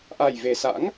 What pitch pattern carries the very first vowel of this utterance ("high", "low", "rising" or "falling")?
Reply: low